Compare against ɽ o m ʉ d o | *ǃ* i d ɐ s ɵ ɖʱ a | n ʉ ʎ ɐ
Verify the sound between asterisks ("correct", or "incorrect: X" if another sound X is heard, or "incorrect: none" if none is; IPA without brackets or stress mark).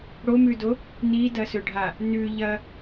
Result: incorrect: n